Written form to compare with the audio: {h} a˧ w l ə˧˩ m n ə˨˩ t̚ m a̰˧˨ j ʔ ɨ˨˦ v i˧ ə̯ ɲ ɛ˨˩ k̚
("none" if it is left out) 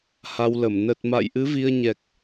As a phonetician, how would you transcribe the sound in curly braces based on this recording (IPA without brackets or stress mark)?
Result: h